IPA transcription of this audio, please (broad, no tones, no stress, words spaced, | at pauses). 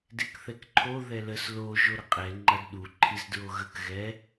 dekθɛkǃʰo ðɛləs lo ʒoɾəqʼɛ ŋ͡ǃɐdɗu ǃʰizdɹoɣək ɣɛ